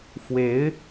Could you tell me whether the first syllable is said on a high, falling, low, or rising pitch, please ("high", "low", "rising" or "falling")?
rising